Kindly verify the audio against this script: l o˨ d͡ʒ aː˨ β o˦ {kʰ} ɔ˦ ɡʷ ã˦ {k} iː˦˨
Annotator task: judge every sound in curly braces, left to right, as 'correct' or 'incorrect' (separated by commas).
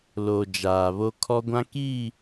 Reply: correct, correct